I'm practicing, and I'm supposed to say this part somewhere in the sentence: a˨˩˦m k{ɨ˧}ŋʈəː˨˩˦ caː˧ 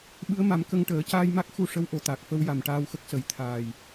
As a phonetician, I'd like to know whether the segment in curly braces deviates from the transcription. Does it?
yes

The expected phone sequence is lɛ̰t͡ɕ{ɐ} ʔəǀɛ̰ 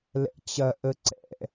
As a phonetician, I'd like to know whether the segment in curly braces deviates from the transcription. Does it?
no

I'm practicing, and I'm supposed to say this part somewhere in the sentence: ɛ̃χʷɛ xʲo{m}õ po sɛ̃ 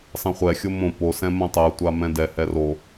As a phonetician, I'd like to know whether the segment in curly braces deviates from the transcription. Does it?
no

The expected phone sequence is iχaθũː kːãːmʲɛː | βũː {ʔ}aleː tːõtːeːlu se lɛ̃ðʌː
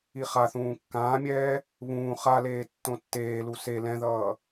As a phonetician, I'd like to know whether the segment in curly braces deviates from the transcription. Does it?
yes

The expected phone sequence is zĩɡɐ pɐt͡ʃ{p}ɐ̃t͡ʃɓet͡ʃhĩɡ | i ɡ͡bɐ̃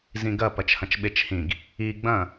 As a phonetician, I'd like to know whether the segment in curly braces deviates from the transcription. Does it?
yes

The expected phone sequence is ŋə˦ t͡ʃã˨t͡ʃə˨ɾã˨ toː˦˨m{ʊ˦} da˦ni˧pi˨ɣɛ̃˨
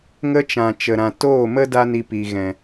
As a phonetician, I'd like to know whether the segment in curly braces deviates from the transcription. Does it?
yes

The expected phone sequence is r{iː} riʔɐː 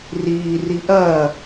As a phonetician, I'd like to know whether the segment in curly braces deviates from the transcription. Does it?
no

